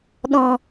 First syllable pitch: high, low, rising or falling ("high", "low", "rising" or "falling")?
low